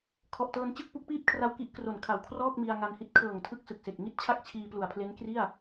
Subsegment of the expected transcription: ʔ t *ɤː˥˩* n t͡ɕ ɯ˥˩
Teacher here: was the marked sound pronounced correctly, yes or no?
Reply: no